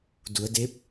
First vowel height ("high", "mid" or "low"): high